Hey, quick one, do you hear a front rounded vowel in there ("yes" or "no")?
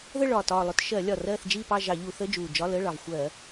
no